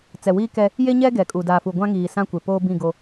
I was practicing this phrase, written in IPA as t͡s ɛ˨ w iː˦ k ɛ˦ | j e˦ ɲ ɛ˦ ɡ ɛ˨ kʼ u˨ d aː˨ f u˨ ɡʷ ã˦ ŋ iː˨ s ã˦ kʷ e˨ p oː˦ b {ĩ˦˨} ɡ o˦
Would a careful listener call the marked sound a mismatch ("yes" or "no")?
no